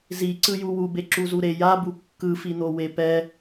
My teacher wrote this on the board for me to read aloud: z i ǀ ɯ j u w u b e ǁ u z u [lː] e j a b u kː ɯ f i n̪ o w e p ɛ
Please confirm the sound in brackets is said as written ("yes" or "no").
no